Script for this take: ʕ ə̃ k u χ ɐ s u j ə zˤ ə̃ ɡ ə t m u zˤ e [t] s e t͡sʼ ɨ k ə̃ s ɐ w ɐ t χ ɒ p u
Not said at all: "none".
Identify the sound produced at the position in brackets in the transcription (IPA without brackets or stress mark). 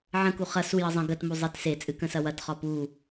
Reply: t